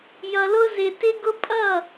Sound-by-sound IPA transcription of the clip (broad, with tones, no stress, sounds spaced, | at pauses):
j ʌ˧ l ʊ˥ z ɪ˧ t ɪ˥ ɡ ʊ˥ pʼ ʌ˥˨